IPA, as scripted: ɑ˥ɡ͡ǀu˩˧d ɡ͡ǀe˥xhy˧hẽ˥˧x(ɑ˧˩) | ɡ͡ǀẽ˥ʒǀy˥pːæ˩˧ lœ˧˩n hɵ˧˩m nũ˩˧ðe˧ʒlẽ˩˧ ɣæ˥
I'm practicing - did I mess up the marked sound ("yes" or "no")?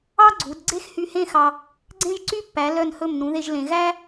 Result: yes